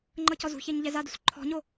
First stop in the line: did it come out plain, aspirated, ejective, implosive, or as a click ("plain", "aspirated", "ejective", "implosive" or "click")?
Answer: click